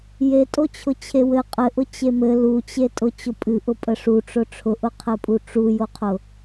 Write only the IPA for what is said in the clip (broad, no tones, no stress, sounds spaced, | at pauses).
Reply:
j e tʼ o t͡ɕʰ ʊ t͡ɕʰ e w ɘ qʼ ɘ ʔ ʊ t͡ɕ e m ɘ l u t͡ɕ e tʼ ʊ t͡ɕ ʊ pʼ ɨ ʔ ʊ pʼ ə ʂ u ʈ͡ʂ ʊ ʈ͡ʂʰ ʊ ʔ ʊ qʰ ɘ pʼ u ʈ͡ʂ u j o qʰ ʊ